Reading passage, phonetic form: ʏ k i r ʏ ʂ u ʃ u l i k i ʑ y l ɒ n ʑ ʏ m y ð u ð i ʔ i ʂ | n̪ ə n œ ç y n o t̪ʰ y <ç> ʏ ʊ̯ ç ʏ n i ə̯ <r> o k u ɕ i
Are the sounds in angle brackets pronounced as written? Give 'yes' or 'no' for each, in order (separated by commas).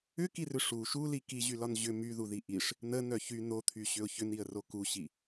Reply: no, yes